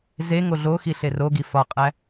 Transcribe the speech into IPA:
ze ŋoɮoxi ɬeroɡi fɒqʼæ

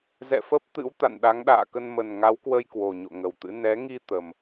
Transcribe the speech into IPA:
zɛ̰˧˨fə˦˥p̚ t̪ɨ̰˧˥w t̪a̰˧˨nɗa˨˦ŋɗa̰ː˧˨kə˧n mə˨˩nŋa˨˦wkwə˧j kwo˨˩ɲo̰˧˨ŋə˨˩wt̪ɨ̰˧˥ nɛ˨˦ŋi˧ t̪ə˨˩m

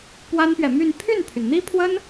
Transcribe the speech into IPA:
pwa˥npɥɛ˨ my˥˧n pʰy˥˩npʰy˩nn̪i˥pʰwə˥n

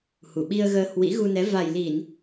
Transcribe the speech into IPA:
hu˧˩ɓi˧ə̯ɣəː˧ hwḭ˧˥ɣu˧nɛ˨˦ va˨˩jli˧˩˨n

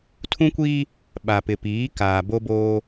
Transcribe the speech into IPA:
tʰũ˦kʷiː˦ | ɓa˨pɪ˨piː˨˦ kaː˨bo˦boː˦

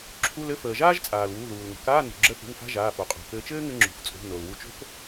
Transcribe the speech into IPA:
ǁʰu˧˥˧lɘ˧˥˧ fəː˩ ʒaː˥ʒ t͡sʼaː˩lwuː˩˧˩ ðuː˩l ŋə̤˩kaː˧˥˧ nṳ˩ɡ͡ǁə˧θṳ˩˧˩ŋ fa̤˧˥˧ʒaː˩˧˩fo˩ qʼo̤˩kɘː˧ t͡ʃɘː˥ŋɘ˧ ŋ͡ǁṳ˩ft͡sʼo̤˩˧˩ no˩lwu˧t͡ʃo̤˥k

